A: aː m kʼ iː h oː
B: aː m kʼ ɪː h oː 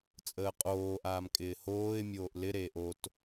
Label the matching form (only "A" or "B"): B